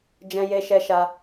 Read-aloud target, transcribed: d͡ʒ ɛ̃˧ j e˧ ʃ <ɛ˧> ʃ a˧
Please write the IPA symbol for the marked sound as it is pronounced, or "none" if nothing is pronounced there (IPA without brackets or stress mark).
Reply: ɛ˧